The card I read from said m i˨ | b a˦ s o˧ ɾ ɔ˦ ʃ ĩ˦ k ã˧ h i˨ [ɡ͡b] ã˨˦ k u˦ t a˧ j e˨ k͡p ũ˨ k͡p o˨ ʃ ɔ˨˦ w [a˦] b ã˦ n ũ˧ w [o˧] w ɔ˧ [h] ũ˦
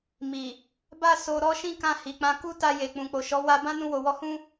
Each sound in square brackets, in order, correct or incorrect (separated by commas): incorrect, incorrect, incorrect, correct